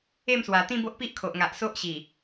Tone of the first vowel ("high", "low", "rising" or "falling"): falling